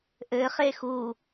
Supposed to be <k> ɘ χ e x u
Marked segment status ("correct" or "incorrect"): incorrect